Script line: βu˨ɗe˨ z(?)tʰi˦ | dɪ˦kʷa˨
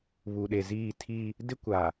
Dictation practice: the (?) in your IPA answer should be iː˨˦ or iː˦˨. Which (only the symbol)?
iː˦˨